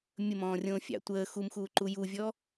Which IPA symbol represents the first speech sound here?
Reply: mʲ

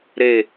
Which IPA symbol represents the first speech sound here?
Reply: ɾ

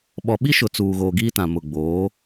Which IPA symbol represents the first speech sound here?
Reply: ɓ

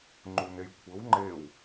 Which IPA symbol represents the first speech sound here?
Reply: ŋ͡ǃ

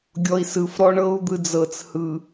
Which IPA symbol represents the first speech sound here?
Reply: ɡʲ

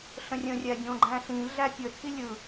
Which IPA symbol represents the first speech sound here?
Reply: ɬ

